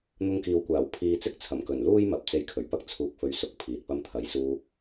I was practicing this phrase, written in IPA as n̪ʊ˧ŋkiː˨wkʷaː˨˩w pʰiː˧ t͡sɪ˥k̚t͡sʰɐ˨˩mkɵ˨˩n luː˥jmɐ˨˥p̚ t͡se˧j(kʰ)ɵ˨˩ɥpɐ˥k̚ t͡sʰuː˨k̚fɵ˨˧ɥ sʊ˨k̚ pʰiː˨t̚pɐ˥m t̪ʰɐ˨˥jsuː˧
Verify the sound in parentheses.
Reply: correct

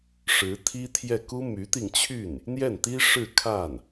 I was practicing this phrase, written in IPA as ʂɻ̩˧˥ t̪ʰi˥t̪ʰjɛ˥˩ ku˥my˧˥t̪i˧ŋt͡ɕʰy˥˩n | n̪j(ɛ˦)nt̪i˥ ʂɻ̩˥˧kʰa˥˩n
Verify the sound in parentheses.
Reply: incorrect: ɛ˥˩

